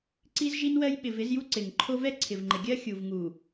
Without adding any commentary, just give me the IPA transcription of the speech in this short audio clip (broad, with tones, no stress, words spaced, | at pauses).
ǀi˦zʒi˦nwɜ˦j ɓɪ˨vɪ˨˦zju˦ ǀɪ˨ŋǃʰo˦ vɛ˦ǀʰɪ˨vŋ͡ǃɪ˨ɡʲɜ˦ xʲu˨vŋu˨